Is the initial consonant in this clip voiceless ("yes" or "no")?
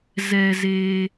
no